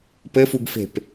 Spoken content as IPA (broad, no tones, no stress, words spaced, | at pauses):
pɘfuɡfe̤p